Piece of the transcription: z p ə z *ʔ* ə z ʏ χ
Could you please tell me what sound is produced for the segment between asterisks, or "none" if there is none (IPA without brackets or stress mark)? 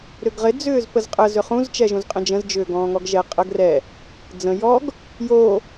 qʼ